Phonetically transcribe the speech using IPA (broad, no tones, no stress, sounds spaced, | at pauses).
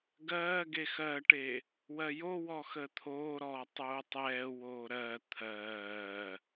ɡ ɜː ɡ e x ɜ ʈ e | w ɜ j o w ɔ x ə t̪ʰ oː ɾ ɔː tˤ oː tˤ ɛː w oː ɾ ɜ t̪ʰ ɜː